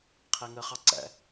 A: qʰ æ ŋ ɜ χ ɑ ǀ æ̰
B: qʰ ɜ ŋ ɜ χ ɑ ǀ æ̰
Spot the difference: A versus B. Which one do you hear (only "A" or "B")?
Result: A